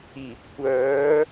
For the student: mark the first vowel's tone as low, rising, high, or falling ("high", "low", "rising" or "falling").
low